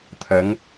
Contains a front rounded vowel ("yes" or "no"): no